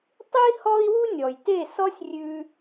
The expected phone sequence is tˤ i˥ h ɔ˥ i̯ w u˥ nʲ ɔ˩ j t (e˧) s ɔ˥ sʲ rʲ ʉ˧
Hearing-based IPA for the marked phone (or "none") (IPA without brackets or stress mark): e˥˩